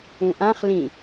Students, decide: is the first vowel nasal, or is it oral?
nasal